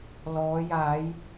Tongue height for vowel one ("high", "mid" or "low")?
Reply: mid